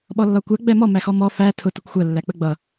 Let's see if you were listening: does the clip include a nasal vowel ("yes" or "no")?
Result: no